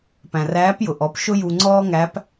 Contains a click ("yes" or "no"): yes